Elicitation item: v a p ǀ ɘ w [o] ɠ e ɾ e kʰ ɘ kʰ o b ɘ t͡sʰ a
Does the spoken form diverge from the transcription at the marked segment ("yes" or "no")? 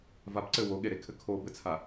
no